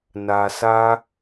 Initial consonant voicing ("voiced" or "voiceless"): voiced